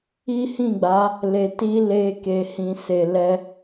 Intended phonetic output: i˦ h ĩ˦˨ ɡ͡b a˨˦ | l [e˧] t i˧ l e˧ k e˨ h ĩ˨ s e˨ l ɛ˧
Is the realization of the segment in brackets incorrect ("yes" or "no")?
yes